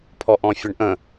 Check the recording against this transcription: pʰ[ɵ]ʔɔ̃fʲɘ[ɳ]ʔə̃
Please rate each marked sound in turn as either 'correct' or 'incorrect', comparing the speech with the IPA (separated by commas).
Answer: incorrect, correct